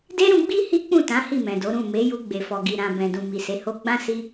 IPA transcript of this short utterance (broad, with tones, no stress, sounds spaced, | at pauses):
d e˦ ɾ ũ˧ ɡ͡b i˦ h i˦ k͡p ũ˦˨ t ã˨˦ h i˦˨ m ɛ̃˨ d o˨˦ ɾ ũ˦˨ m e˨˦ j u˧ ɡ͡b e˨ f ɔ˨ ɡ i˨ ɾ ã˨ b ɛ̃˨ d ũ˨ m i˨ s e˨˦ h o˦ ɡ͡b ã˦ s i˦